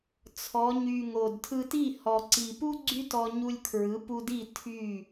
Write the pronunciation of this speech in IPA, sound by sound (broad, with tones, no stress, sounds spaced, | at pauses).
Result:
t͡sʰ ɔ˩˧ ɲ y˨˩ ŋ o˨˩ d tʰ ɯ˧ t i˥˩ h ɔ˨˩ ǀ i˨˩ p u˥ ɡ͡ǀ y˥ t ɔ˧ ɲ u˧ lʲ kʰ ɹ ɯ˩˥ p u˧ d i˥˩ tʰ y˥˩